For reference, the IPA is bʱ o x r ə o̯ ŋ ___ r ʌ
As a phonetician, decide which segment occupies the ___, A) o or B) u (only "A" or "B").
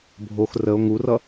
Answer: B